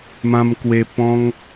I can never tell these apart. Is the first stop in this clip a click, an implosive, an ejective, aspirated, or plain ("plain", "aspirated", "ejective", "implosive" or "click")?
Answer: plain